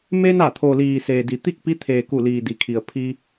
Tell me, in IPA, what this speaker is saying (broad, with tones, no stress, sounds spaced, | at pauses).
m e˧ n a˧˩ t̪ʰ o˩ l iː˩ s eː˩ d i˩˧ t̪ i˥˨ k̚ p i˧˥ t̪ʰ eː˩ k u˧˩ l iː˩ d i˩ kʰ i˩ ə̯ pʰ i˧